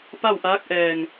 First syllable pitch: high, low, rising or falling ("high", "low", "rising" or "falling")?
falling